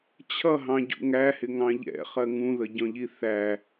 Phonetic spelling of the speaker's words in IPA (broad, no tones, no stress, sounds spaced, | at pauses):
t͡ɕʰ ʌ ɦ ɑ̃ ɟ ṵ ŋ æ h ɪ ŋ ɑ̃ ʎ ɛ̰ χ ɜ ŋ ũ ð ə ɟ ɔ̃ ʎ i θ æ